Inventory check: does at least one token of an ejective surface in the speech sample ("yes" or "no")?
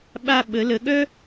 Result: no